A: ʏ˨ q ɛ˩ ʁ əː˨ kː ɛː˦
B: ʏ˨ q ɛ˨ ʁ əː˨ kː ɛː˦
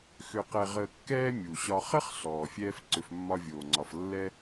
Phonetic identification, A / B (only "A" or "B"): B